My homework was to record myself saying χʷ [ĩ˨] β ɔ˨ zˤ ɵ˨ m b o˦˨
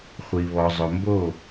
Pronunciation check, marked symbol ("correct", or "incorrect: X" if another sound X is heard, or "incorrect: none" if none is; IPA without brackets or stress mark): incorrect: i˨